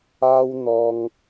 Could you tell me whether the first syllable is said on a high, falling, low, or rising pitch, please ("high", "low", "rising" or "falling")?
high